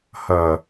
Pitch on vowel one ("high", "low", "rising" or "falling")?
low